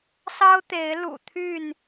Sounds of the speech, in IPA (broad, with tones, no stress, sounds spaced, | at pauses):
s ɑ˦ ʊ̯ t̪ e˨˦ ɪ̯ l ṵ˨˩ t̪ʰ y˥˨ n